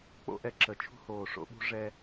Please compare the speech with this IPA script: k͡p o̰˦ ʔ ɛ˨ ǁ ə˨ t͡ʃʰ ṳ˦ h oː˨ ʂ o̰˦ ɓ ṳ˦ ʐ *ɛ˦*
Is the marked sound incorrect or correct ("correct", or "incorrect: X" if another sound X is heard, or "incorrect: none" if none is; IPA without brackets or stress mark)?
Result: correct